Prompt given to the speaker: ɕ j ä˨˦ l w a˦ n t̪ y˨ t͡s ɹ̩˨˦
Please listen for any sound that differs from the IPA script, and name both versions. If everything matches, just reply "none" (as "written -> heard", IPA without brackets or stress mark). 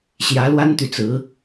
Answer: none